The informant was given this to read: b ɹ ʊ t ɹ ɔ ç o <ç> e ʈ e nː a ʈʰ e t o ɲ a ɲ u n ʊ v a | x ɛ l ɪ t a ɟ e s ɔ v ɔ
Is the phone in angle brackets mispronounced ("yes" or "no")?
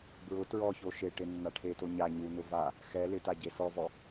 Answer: yes